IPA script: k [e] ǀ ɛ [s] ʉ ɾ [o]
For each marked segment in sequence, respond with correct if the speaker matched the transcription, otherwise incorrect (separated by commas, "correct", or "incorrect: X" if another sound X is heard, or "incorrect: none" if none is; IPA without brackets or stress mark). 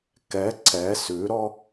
incorrect: ɛ, correct, incorrect: ɔ